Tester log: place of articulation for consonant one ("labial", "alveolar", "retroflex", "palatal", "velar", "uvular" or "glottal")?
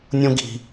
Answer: alveolar